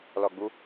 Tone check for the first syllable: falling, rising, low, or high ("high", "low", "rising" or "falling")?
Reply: low